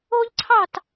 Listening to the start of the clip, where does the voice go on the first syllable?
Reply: high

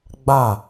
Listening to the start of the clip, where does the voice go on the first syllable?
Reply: falling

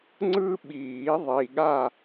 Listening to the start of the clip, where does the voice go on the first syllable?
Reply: high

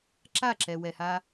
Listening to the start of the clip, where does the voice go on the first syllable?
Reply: falling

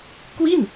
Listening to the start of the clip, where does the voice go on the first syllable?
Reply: falling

